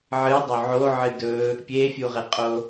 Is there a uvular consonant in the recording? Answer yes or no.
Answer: yes